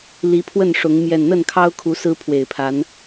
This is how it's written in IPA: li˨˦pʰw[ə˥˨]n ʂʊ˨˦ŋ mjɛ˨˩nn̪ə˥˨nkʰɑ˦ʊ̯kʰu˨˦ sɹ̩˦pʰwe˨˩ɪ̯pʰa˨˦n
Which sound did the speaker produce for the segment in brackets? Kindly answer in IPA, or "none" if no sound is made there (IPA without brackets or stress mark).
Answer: ə˥˨